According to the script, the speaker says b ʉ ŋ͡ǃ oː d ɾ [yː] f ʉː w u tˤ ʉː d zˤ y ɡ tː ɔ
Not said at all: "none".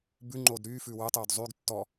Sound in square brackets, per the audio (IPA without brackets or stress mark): yː